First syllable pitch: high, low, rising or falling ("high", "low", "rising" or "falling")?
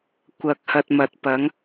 low